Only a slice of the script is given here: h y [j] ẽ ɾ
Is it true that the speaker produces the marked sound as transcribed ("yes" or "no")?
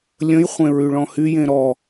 yes